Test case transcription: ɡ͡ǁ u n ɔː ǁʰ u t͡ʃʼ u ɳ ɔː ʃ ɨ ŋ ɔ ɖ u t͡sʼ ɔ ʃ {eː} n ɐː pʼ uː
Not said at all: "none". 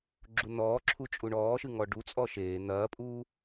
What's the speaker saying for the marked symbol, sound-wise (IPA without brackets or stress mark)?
eː